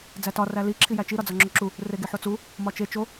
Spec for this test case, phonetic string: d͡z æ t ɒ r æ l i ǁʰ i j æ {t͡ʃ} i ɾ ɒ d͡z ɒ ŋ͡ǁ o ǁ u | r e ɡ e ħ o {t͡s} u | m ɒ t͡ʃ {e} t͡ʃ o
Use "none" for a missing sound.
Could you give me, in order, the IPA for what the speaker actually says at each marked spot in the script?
t͡ʃ, t͡s, e

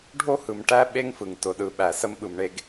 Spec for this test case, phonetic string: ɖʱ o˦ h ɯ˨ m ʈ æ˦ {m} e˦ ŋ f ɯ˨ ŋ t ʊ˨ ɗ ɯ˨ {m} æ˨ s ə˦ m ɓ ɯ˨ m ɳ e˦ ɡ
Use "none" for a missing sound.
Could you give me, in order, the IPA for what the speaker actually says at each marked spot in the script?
ɓ, ɓ

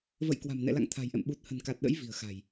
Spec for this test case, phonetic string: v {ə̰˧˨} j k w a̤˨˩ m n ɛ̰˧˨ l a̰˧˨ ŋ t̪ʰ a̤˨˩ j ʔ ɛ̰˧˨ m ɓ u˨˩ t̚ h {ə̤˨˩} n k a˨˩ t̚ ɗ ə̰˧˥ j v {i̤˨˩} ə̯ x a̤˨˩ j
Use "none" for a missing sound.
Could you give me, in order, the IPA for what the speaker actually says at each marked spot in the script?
ə̰˧˨, ə̤˨˩, i̤˨˩

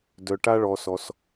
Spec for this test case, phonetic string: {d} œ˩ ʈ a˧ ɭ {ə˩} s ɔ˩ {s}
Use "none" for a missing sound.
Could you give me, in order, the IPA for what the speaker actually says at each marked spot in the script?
d, ɔ˩, s

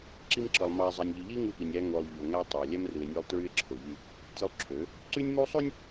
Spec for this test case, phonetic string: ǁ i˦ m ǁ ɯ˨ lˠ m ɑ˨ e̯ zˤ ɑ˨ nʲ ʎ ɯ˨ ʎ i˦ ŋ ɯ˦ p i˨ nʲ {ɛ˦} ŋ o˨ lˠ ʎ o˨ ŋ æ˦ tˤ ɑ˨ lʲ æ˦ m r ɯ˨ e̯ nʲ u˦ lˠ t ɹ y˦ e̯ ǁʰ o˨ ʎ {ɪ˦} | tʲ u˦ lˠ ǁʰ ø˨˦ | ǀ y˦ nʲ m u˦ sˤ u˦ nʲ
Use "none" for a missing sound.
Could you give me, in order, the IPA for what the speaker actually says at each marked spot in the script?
æ˦, y˦

